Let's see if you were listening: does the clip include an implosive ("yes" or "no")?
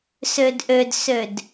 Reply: no